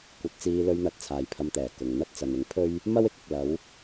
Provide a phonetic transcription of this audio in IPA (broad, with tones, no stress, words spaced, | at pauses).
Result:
kʷɐ˨˥t̚t͡siː˧lɵ˧ɥn̪ɐ˨˥t̚ t͡sʰaː˨jpʰɐ˧mt̪ɛː˨˩ kʊ˨ŋn̪ɐ˥t̚ t͡sɐ˨nɪ˨˥ŋpʰɵ˥ɥ | mɐ˥wɪ˥k̚ɪ˨k̚ lɐ˨˧w